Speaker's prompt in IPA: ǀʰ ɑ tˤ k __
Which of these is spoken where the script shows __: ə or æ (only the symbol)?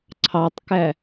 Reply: æ